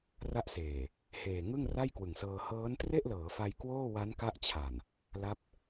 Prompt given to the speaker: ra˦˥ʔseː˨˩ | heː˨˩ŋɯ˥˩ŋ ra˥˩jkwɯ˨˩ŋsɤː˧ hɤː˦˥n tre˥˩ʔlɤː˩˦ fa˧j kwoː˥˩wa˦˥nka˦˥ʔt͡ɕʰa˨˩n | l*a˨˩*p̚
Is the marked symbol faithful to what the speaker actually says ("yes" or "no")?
no